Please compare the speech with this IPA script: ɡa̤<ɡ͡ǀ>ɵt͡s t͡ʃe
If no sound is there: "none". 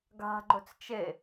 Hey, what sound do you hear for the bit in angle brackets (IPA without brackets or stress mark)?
ɡ͡ǃ